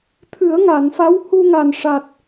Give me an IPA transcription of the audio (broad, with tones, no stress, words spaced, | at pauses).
t̪ʰɨ˨˩˦ə̯ŋa˨˩˨nfa˧˥w hu˧ŋa˨˩nʂa˨˩t̚